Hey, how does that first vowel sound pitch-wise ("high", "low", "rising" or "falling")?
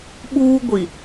high